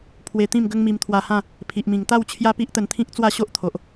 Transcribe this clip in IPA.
pʰ w e˧ t̪ ĩ˥˧ m ɡ ə˦ ŋ m i˧ m t̪ʰ w a˧ h ã˥˧ | pʰ i˨ ʔ m ĩ˨˩ ŋ t̪ a˥˧ w t͡ɕʰ j a˦ p i˦ ʔ t̪ ə˧ n t̪ʰ ĩ˦ k̚ t͡s w a˥˧ ɕ o˦ ʔ t̪ʰ o˨ ʔ

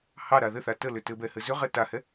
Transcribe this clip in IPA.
h ɑ ɾ a ð ɘ θ a t ə l ʏ t ɘ b ɛ h ɘ z ʏ ʁ ɛ t a h ɛ

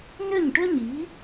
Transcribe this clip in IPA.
n ʏ˥˩ ɲ ʈ ʏ˥ ɲ i˩˥

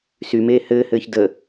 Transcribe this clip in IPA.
s y m eː h ɘː h ɘː ç d ə

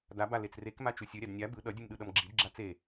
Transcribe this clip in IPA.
d a b a l e t͡s r e k m a t͡ʃ u sʲ ɯ ɾʲ a d nʲ a b ɯ ɗ ʌ dʲ ɯ m ɗ ɯ ɗ ʌ m ɡ͡ǁ i d ɡ͡ǁ a t͡s e

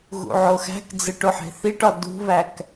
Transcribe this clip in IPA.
ɣ ṵ ʕ o x æ̤ k d͡z e ʈ o ħ e̤ θ i ʈ ɒ d ṳ β æ k

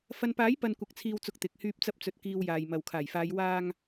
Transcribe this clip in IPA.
f ɐ˨ n p aː˨˥ j p ɐ˧ n kʷ ɐ˨ k̚ t͡sʰ iː˨ w t͡s ʊ˨ k̚ t̪ ɪ˨ k̚ h yː˧ p̚ t͡s ɐ˧ p̚ t͡s ɵ˨ t̚ k iː˧ w j aː˨ j m ɐ˨ w kʰ aː˨˩ j f aː˨˧ j w aː˧ ŋ

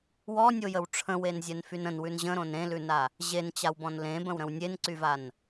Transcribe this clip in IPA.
w ɔ nʲ o j ə w ʈ͡ʂʰ ə̃ w e n zʲ ɛ n f y n ə̃ n w ʉ n ʑ ə̃ ɾ õ n ɾ ẽ l ʉ n a | ʑ e n t͡ɕ a w b ɔ̃ n l ẽ b ə̃ w ɾ ə̃ w nʲ e n ǀ y v a n

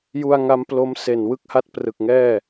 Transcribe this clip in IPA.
j u˧ a̯ ŋ a˦˥ m p l o˦˥ m s e˨˩ n w ɯ˥˩ k̚ h a˥˩ t̚ p r ɯ˨˩ k̚ ŋ ɛː˥˩

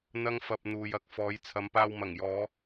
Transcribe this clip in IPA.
n̪ ɐ˥ ŋ f ɐ˧ p̚ n̪ uː˨ j ɐ˨ k̚ f ɔː˨˧ j t͡sʰ ɐ˨˧ m p aː˧ w m ɐ˨˩ ŋ j ɔː˨˧

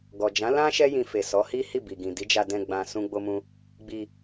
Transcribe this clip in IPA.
ɡ ɔ˨ d͡ʒ ã˨˦ l ã˦ ʃ ɛ˦ j ĩ˧ f e˨ s ɔ˨˦ h i˦ h i˦˨ b i˨ ɡ ĩ˨ d i˨˦ d͡ʒ a˧ d ɛ̃˧ ɡ͡b ã˧ s ũ˦ ɡ͡b o˦ m ũ˦ | ɡ͡b i˧

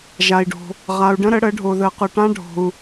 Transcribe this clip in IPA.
ʒ a˩ i̯ ɖ o̤˩ | ʁ a˩ u̯ ɖ ə̃˦˥ ɾ ə˨˩˦ ɽ ə˨˩˦ ɖʱ o˩ ð ə˨˩˦ q ʊ˩ ʈ ã˦˥ ɖʱ o̤˩ u̯

